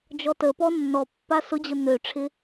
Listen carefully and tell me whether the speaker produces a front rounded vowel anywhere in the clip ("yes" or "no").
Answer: yes